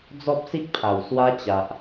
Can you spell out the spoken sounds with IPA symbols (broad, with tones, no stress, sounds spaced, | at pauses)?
d͡z ɔ˦ p̚ s i˦ k̚ pʰ a˨˩ w s w a˦ t͡ɕ a˨ ʔ